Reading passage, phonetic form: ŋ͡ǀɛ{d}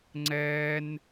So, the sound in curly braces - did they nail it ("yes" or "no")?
no